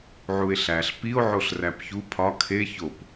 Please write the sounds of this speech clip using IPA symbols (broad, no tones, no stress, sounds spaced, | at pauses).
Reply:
ʕ u e̯ ɬ æ ɬ p i o̯ ʕ o ɬ r æ p ç u pʰ ɒ kʰ e ç o p